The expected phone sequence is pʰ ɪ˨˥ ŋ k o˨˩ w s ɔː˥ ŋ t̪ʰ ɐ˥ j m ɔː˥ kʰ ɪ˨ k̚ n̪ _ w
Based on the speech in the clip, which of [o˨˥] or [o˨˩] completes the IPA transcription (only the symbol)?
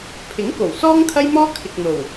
o˨˩